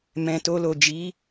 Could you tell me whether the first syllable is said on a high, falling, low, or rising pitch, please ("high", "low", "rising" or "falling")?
low